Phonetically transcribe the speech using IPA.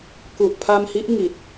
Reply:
ku˨˩ʔpʰa˧mhi˦˥ʔ ŋi˨˩t̚

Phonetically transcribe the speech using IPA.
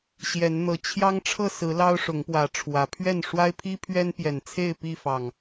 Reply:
ɕjɛ˨˦n n̪ɤ˨˩t͡ɕʰjɑ˦ŋ ʈ͡ʂʰɤ˥˨sɹ̩˨˦ lɑ˦ʊ̯ʂʊ˨˦ŋpwä˨˦ʈ͡ʂʰwä˨˦ pʰɥɛ˥˨n ʂwa˦ɪ̯pʰi˦pʰɥɛ˦n pjɛ˨˩nt͡sʰe˥˨ɪ̯pi˥˨fɑ˨˩ŋ

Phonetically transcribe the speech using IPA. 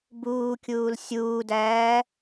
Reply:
buːkʲuːl sʲuːdæː

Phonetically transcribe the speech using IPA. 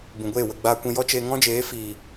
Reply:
bũ˨ɡʷeː˦˨wə˧ ɡ͡baː˧kʷĩ˧ jɔ˦ t͡ʃeː˧ŋɔ̃˦d͡ʒeː˨˦ fiː˨

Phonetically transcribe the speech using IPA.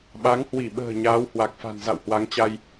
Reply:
ɓa˨˦ŋhwi˧˩ɓə̤ː˨˩ ɲaː˨˦whwa˨˩k̚fa̤˨˩n za̰˧˨whwa˨˦ŋt͡ɕa˧j

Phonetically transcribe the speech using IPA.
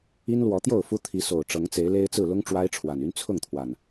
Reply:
i˦nlwɔ˨˦t̪jo˥˨ʊ̯fu˦ t̪ʰi˨˦so˨˩ʊ̯ ʈ͡ʂɤ˨˦ŋt͡se˨˦ɪ̯le˦ɪ̯t͡sɹ̩˥˨ lʊ˦ŋ ʈ͡ʂwa˦ɪ̯ʈ͡ʂʰwa˨˩ny˦n t͡sʰʊ˥˨ŋt̪ʰwa˨˩n

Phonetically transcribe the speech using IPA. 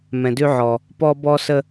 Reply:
mɛ̃˨dʉ˦ʕɔ˨ | pɔ˦ bɔ˦sə˦

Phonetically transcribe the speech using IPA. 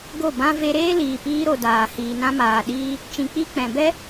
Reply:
ɡo˦˨bã˦ ve˧ɾeː˦ liː˨piː˧ɾo˨ daː˨ hiː˨nã˧maː˨ɗiː˧ | t͡ʃĩ˧k͡pi˦ k͡pɛ̃˨bɛ˦

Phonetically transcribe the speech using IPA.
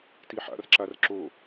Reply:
tiħa̰r ǁarǁo

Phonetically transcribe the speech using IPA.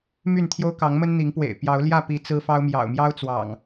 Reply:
my˥˨nt̪ʰjo˦ʊ̯ kɑ˨˦ŋmə˦nn̪i˨˦ŋpwḛ˨˩ɪ̯ pjɑ˨˦ʊ̯ljä˥˨ pi˨˦ t͡sɹ̩˦fɑ˦ʊ̯ mjɑ̰˨˩ʊ̯ mjɑ˦ʊ̯t͡swɑ̰˨˩ŋ

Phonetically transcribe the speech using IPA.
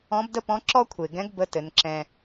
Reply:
ɔ̃˧˥bdə˥pɔ̃˧˥ ǁɔ˥kʷʰe˩ɡɛ̃˧˥ɡ bə˧˥tɘ˩˧nǁɛ̃˧

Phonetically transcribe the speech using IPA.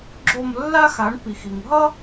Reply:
ɡ͡ǁo˦˨mlːa˥xa˩˥ɳ pi˩xi˩ŋɦʌ˥

